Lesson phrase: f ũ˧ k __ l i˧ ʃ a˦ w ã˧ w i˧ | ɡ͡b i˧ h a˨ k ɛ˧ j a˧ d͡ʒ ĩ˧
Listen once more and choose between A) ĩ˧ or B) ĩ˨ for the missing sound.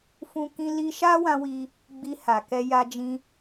A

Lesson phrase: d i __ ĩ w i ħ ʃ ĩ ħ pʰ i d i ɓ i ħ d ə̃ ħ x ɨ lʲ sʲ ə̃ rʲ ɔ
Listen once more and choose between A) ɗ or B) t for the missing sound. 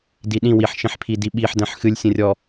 A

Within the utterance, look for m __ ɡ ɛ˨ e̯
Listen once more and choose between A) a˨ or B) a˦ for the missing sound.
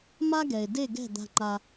B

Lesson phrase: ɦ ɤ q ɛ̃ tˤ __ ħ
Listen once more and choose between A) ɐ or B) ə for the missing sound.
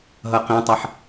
A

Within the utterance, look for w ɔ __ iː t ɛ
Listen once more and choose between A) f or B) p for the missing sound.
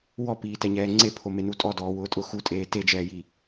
B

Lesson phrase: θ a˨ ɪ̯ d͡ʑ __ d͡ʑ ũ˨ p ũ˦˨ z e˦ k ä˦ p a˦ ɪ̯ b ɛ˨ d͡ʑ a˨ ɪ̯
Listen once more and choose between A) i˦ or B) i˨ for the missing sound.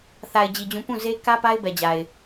B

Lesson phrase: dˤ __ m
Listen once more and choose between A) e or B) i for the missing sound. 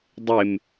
A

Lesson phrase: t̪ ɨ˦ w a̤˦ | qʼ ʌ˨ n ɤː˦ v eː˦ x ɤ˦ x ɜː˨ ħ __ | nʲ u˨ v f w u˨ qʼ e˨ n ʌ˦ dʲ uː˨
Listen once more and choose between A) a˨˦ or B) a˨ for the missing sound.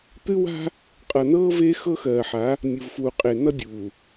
A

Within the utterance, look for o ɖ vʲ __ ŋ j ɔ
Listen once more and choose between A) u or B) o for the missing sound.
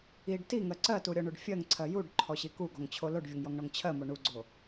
B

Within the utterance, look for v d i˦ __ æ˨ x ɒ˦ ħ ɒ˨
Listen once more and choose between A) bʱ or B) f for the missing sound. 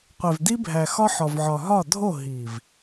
A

